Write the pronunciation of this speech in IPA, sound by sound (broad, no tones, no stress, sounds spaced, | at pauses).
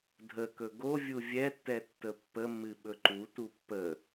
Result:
dʱ ə k ɵ ɡ o vʲ u vʲ ɛ tː ɛ tː ə pː ə mː ɨ ɓ ɵ ǃ u t u pː ə